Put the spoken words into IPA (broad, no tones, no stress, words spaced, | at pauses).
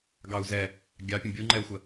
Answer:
ɡɑu̯zɛ | ɡʲɑpʲə̃ bʲuŋ͡ǃɛu̯xʷə